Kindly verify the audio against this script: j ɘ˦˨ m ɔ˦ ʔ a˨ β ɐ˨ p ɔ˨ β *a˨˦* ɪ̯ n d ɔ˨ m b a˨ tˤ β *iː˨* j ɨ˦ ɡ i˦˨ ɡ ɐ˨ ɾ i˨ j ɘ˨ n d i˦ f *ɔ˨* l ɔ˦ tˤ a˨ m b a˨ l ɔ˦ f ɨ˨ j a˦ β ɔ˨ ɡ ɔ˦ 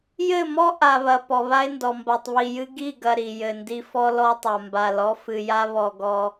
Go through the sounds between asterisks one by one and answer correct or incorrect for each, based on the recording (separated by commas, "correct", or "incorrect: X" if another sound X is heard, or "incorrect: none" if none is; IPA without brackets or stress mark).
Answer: incorrect: a˦, incorrect: i˨, incorrect: ɔ˦